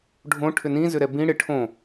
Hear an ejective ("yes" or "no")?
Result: no